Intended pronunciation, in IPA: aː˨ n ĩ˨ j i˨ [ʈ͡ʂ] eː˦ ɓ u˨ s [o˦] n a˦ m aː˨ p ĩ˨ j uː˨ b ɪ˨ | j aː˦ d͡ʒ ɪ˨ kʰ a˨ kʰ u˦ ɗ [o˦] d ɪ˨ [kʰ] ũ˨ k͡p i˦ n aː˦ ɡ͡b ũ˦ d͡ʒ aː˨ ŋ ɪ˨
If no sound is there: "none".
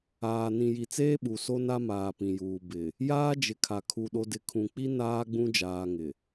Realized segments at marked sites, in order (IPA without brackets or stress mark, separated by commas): t͡s, o˦, o˦, kʰ